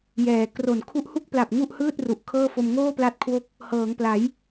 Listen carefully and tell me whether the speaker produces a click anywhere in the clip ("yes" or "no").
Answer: no